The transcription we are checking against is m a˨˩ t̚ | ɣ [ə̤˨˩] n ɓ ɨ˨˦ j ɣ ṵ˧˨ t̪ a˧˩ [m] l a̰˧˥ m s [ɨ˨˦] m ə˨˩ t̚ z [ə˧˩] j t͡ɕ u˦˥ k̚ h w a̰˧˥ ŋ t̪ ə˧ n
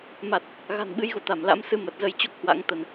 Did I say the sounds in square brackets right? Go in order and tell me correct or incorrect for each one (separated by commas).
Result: incorrect, correct, correct, incorrect